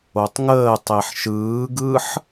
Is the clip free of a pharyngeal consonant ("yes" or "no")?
no